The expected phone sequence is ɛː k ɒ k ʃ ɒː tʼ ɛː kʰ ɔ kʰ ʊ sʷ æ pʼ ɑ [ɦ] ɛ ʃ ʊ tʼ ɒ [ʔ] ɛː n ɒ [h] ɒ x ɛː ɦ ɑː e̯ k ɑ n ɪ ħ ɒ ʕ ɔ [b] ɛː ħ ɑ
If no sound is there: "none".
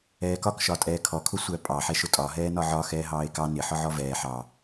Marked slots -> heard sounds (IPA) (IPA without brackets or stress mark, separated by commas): ħ, ɦ, ʕ, v